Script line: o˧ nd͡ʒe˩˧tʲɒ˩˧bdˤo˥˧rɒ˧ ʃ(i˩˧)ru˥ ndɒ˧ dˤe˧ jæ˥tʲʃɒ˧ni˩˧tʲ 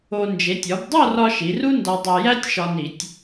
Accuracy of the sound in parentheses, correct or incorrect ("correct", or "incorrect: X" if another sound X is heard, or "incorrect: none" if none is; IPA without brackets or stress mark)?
correct